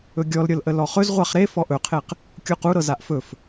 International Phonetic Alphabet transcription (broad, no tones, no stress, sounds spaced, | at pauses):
ɵ ɡʲ ɔ l ɾʲ ɤ l ʔ ə l ɔ χ ɵ z ʁʷ a χ ɾ e f ɔ ʔ ɵ qʰ e q | kʲ u q u ɾ ɤ z a ʔ f ɵ f